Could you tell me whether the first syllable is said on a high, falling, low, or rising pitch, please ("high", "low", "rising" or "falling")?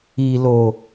low